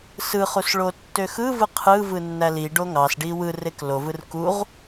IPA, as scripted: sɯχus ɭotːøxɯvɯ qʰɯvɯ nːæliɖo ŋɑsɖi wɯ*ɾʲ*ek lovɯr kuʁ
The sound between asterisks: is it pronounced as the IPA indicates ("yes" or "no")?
no